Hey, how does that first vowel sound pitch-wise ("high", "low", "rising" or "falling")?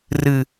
low